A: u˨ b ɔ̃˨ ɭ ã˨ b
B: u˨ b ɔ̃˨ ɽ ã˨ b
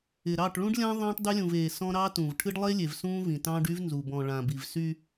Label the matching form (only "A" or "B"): A